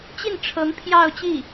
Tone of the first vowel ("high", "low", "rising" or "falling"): falling